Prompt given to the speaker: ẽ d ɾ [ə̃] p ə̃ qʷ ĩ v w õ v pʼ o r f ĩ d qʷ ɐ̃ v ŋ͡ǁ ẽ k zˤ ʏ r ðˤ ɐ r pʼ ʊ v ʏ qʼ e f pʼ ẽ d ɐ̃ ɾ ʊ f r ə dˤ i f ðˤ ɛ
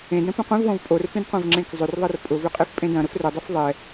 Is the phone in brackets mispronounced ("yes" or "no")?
no